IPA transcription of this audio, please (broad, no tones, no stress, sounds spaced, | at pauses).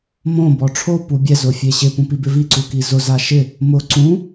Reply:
m õ b ɔ ʈ͡ʂʰ o p u bʲ ɛ z ʊ fʲ e ɕ ɪ p ũ p i b ɪ v i ǀ u k i z ʊ z a ʃ ɪ | m ʊ ǀ ũ